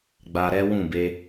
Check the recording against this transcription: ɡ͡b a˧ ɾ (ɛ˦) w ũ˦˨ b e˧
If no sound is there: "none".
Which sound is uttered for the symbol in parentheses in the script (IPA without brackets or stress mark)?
ɛ˦